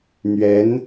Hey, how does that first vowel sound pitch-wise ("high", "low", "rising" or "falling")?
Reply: rising